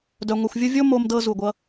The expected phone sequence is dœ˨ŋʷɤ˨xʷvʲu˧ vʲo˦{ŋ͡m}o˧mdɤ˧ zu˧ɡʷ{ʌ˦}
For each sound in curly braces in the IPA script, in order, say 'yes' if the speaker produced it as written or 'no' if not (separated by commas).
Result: no, yes